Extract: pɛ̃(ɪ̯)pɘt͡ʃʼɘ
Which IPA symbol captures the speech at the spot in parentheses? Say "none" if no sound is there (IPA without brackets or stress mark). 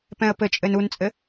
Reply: ə̯